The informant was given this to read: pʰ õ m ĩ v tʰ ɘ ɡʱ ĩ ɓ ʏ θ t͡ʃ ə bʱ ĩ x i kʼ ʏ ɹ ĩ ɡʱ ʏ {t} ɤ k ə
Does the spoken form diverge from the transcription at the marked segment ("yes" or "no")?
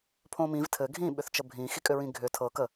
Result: yes